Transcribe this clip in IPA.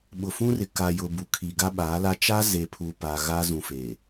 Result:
ɓʊ˨fũ˦rɪ˨ ka˨jʊ˨ bu˨kʰi˨ ɡa˦ɓa˨˦la˦ t͡ʃa˦ze˨pʰu˨ pa˨ ɣa˦ zũ˨feː˨

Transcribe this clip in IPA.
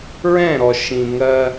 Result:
ɹɛ̃˦˨ɾɔ˨ ʃĩ˨ŋɜ˦

